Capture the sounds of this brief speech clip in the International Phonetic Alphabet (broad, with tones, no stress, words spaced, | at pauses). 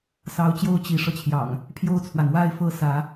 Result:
sɑ˨˦ʊ̯t͡ɕjo˦ʊ̯ t͡ɕi˨˦ʂɤ˧t͡ɕʰjɑ̰˨˩ŋ | pʰjo˥˨ʊ̯t͡sʰwa˩nwa˦ɪ̯ fɤ˦ sä˨˦